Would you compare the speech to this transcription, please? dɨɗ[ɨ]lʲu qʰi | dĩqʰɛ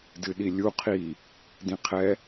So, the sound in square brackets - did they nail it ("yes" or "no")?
no